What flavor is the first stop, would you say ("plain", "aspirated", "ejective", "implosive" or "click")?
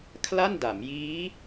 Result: aspirated